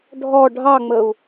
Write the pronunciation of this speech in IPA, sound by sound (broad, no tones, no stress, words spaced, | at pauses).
ɖʱɔ ɖʱɑŋ͡məu̯